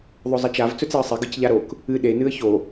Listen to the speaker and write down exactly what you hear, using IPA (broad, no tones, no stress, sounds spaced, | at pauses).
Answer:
ðˤ ɵ zˤ ɐ t͡ʃ a v t͡s ɵ t͡s e ə̯ sˤ e ɡ ɨ c ʎ a ɾ o k | ɨ ɗ e n ɨ ə̯ ç o